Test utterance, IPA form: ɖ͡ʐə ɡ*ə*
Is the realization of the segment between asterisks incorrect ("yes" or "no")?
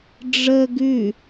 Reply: yes